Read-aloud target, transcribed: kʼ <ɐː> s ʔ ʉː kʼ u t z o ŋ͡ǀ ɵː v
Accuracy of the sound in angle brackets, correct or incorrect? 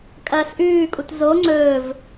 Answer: correct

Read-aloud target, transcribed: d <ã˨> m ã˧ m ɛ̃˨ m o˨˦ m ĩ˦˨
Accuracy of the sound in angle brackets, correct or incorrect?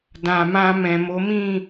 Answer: correct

